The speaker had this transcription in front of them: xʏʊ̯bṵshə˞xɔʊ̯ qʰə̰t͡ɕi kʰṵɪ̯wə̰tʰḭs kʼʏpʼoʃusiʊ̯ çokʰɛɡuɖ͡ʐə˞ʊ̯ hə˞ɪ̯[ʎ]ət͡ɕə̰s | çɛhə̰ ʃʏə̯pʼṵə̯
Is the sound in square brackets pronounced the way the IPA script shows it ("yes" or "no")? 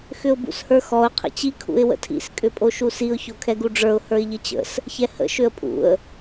yes